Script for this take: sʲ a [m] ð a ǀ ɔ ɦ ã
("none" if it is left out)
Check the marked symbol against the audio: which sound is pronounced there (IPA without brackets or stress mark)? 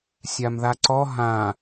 m